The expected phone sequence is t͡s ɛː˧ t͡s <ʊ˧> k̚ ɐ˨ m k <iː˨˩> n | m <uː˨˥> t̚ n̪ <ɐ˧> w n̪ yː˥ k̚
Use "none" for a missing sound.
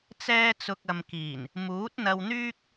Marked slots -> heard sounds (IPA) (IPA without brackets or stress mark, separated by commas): ʊ˨, iː˨˩, uː˨˥, ɐ˧